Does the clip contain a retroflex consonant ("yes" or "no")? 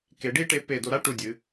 yes